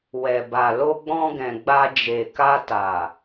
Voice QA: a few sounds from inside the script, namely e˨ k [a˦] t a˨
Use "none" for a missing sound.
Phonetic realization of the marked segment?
a˧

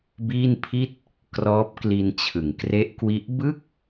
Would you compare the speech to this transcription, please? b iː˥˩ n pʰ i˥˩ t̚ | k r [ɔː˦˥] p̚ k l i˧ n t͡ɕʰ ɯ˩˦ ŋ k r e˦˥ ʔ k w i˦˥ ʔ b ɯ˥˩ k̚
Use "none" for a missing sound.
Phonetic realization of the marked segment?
ɔː˦˥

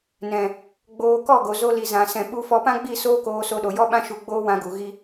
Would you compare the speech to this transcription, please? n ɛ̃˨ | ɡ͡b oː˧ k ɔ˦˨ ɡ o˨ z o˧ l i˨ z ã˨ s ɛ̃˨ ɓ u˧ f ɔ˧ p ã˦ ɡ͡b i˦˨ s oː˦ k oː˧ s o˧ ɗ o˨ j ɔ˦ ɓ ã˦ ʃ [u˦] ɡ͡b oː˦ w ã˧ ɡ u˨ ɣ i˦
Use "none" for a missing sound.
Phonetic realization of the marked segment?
u˧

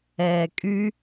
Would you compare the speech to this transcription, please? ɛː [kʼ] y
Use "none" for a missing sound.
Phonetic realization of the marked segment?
kʼ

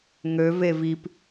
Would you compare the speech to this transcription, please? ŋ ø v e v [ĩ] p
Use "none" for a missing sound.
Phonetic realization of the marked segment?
i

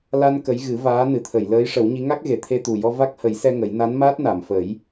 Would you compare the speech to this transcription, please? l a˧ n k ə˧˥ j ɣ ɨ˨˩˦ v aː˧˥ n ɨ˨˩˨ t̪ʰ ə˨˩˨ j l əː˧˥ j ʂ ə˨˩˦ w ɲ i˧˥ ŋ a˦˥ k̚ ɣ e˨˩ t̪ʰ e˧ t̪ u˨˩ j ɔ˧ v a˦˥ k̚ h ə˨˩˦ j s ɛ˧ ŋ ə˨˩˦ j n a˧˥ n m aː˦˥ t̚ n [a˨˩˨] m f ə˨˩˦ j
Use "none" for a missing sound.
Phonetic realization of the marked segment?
a˨˩˨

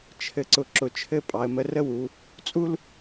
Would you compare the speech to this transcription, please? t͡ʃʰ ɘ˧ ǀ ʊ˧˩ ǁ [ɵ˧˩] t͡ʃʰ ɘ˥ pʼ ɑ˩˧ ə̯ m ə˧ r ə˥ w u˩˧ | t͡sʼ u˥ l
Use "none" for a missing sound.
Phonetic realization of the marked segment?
ʊ˧˩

